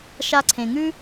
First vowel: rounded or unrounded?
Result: unrounded